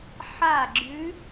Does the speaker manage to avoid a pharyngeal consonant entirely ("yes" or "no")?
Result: no